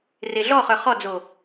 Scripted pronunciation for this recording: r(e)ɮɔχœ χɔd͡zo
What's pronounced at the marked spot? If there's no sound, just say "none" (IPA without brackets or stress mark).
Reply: e